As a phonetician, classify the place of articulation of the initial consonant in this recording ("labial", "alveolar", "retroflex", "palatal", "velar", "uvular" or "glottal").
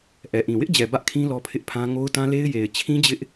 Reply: glottal